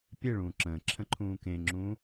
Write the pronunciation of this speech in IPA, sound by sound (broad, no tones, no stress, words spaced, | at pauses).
pʲeɭũː ǁə̃ːǁʰə̃ǃʰũː kẽŋ͡ǁũː